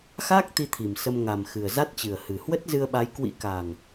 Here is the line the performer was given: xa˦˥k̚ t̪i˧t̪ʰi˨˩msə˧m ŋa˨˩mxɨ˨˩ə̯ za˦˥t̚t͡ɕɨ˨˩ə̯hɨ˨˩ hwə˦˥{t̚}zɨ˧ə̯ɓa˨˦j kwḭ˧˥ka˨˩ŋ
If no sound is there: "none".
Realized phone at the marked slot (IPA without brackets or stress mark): t̚